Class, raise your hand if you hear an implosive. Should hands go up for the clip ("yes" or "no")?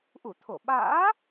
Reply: yes